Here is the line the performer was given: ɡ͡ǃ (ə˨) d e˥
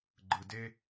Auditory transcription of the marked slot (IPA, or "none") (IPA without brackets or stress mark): ɯ˨